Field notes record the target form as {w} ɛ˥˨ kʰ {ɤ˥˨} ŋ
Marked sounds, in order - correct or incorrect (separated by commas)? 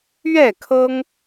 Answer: incorrect, incorrect